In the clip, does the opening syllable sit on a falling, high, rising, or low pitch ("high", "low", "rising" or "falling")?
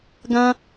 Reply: high